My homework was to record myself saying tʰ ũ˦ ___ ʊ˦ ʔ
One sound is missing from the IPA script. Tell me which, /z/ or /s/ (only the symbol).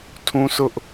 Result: s